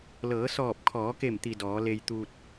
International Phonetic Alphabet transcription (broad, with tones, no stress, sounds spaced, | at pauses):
l ɤː˩˧ s ɔː˧˩ p̚ kʰ ɔː˩˧ k e˧˩ m t̪ i˩ d ɔː˩˧ l e˧ j t̪ uː˧ t̚